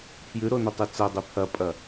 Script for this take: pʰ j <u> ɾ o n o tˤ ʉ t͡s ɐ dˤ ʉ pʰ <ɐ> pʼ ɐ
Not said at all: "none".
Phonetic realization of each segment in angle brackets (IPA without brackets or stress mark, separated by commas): ʉ, ɐ